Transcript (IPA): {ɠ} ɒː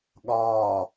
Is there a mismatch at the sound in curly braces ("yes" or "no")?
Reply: no